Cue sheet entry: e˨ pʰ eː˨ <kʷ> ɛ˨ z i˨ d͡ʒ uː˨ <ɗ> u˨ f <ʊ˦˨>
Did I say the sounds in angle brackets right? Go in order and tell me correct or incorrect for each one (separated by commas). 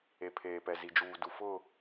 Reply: incorrect, incorrect, correct